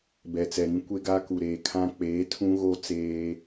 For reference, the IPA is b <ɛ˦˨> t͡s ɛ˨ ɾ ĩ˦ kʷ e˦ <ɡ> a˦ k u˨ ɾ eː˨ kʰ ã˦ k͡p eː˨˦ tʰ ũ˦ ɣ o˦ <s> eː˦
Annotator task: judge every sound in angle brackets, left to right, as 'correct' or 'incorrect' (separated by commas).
incorrect, correct, incorrect